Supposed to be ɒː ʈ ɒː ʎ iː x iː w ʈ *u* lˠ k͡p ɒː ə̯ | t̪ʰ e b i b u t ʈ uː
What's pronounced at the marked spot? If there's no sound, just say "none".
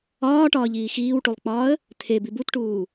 u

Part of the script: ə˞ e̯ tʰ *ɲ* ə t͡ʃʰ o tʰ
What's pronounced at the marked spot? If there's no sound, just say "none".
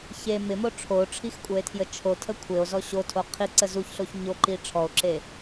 j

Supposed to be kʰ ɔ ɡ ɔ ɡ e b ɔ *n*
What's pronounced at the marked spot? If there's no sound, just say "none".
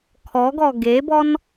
n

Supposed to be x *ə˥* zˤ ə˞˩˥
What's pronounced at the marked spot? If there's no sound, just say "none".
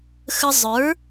ə˧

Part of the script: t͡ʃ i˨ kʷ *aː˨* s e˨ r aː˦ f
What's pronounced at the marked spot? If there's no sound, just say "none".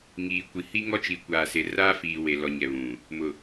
aː˨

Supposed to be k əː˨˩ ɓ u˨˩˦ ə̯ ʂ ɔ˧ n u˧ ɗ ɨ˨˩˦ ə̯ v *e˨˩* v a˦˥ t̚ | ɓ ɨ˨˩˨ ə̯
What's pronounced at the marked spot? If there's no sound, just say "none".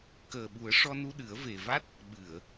e˨˩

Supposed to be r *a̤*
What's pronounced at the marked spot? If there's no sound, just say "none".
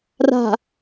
a̤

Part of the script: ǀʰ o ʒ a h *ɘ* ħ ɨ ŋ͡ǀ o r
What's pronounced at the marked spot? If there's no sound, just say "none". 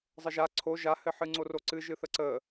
ɘ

